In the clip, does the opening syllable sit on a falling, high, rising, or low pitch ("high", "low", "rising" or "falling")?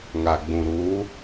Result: low